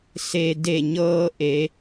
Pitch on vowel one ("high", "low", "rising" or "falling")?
low